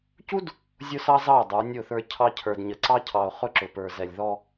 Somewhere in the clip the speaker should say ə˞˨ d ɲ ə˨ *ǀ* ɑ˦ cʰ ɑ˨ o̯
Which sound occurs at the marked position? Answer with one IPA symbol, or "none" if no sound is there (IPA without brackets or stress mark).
ǀ